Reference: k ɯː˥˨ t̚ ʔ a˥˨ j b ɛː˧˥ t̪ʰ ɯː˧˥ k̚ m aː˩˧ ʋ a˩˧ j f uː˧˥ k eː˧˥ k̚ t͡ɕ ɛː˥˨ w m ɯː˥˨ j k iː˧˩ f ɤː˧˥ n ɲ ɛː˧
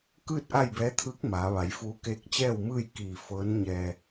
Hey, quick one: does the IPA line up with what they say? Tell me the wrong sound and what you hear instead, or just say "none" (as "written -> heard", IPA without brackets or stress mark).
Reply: none